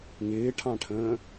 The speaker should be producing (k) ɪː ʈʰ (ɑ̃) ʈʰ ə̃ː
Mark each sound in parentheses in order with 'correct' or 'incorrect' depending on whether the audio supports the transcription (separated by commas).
incorrect, correct